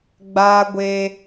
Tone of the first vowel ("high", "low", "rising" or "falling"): high